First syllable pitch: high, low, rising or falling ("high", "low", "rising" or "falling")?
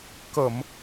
low